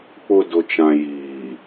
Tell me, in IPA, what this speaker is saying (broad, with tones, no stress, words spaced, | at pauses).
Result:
k͡pʊ˨ dʊ˨t͡ʃã˨ jiː˨